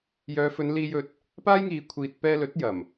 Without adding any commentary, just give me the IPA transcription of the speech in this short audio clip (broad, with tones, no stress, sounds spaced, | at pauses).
j œː˨˧ f ɵ˨˧ n l iː˧ j ɵ˧ t̚ | p aː˥ j ŋ iː˨ kʷʰ iː˨ t̚ p ɛː˧ l ɵ˨˥ t̚ j ɐ˨˩ m